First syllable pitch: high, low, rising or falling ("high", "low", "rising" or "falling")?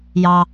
low